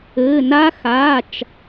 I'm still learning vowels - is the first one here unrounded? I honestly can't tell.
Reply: yes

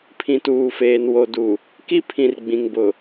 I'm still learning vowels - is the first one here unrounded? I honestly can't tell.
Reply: yes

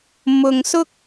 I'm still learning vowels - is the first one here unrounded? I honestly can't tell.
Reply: no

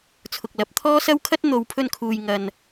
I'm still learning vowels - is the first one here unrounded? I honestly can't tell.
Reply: no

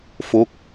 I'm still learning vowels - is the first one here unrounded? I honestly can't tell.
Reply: no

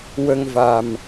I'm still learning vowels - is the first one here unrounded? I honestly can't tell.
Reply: yes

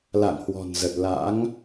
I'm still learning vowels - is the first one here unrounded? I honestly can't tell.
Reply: yes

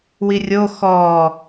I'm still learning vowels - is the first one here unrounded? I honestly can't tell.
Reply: yes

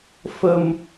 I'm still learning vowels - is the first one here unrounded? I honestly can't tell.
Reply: yes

